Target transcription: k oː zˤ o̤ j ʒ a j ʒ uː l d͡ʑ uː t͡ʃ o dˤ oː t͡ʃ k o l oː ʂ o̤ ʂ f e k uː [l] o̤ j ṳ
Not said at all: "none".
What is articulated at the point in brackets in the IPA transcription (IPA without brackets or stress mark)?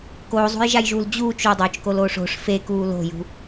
l